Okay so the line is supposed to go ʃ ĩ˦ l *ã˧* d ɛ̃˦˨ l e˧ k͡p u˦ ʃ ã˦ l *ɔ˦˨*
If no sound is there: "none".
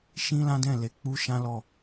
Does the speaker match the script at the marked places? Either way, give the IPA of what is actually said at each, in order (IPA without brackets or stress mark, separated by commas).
ã˦, ɔ˦˨